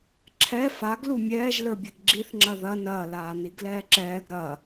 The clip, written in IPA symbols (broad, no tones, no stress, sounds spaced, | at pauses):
ǁʰ ɛ f a ɡ l u mʲ ɛː ʒ l ə˞ bʲ ɛ ɡ ɡ͡ǁ i θ ŋ͡ǁ ɐ ð ɐ n ɐː l aː n i ɡ l ɛː ǁ ɛː ɡ ɾ ɐː